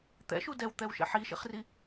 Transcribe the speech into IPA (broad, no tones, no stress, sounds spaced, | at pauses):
t̪ ɛ̰ ʃ u d ɛ w t̪ ɛ w ʃ ɛ̰ ħ i ʃ ḭ χ r i